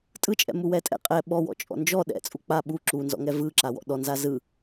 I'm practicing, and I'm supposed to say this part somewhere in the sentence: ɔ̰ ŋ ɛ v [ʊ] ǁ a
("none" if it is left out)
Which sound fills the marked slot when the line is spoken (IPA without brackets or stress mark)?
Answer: ɯ